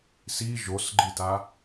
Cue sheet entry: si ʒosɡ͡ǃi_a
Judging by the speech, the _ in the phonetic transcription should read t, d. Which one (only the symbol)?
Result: t